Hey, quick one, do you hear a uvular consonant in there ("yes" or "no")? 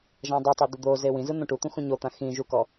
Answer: no